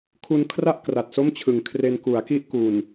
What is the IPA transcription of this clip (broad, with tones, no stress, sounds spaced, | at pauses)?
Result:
kʰ u˧ n kʰ r a˥˩ ʔ k r a˨˩ t̚ s o˥˩ m t͡ɕʰ ɯ˨˩ ŋ kʰ r e˧ n k u˩˦ a̯ k i˥˩ ʔ k u˨˩ n